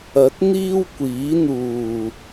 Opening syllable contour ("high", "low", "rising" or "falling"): rising